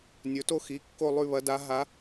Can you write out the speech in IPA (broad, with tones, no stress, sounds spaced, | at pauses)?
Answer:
nʲ ɵ˩˧ t o˧˩ x i˩˧ kː o˧˩ lˠ ʉ˧˩ β ɐ˩˧ d a˩˧ ɦ a˩˧